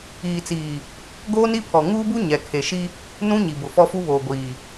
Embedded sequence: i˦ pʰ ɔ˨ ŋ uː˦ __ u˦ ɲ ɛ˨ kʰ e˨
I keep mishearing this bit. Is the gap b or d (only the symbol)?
b